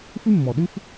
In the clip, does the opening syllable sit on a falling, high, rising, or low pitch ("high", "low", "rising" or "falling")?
high